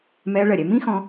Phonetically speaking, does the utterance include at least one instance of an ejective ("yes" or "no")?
no